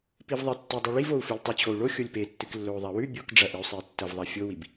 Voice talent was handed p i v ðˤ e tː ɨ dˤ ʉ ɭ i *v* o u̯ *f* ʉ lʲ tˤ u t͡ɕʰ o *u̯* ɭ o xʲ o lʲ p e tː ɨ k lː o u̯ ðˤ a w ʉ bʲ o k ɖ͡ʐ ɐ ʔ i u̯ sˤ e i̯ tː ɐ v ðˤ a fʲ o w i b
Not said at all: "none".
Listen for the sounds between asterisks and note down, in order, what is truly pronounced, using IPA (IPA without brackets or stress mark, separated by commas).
v, f, u̯